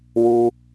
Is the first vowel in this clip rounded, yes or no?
yes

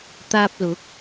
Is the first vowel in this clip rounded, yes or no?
no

